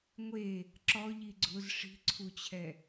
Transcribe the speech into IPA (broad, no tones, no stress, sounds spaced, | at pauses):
ŋʷ e | ǁ ɔ ʎ i ɡ͡ǀ ʊ z ʂ i̤ ǀʰ u t͡ɕʰ ɛ